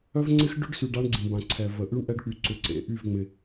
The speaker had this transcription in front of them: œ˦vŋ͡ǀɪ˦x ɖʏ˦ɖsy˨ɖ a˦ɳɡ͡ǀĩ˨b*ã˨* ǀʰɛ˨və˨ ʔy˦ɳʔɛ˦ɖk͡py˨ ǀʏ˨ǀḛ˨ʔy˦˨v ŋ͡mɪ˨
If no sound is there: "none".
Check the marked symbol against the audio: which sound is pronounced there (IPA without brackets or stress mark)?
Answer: ã˨